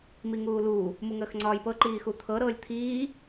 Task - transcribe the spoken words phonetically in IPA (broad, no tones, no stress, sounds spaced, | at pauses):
m i ŋ uː l uː | m u ŋ əː x ŋ͡ǀ ɒː j p ɤ ǃ iː x u t̪ʰ ɤ ɾ ɤː lʲ t̪ʰ iː